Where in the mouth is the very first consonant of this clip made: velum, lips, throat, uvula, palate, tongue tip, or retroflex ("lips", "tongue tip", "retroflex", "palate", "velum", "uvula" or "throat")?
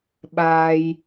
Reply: lips